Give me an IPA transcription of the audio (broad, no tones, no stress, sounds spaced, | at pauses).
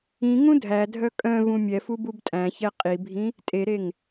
ĩ ŋ ũ dʱ æ dʱ œ kʼ œ̃ v ũ mʲ ɛ f u b u b tʼ æ̃ ç ɛ qʼ i bʱ ĩ | tʼ e ɾ e ŋ